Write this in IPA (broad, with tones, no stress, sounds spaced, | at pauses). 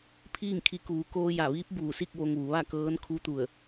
pʰ iː˥˨ ŋ kʰ i˧ k uː˩˧ k oː˧ j a˧˩ ʋ iː˧˥ p̚ b uː˧˩ s i˥˨ k̚ ʋ o˧ ŋ ʋ u˩˧ ʋ a˥˨ k ɤː˧˥ n kʰ u˧˥ t̪ u˧˩ ə̯